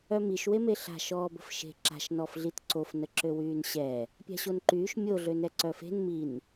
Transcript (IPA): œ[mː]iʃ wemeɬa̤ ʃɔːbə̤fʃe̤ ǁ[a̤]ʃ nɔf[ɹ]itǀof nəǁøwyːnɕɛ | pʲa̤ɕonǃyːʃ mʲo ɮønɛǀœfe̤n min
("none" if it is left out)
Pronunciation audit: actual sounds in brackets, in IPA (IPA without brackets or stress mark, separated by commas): m, a̤, ɮ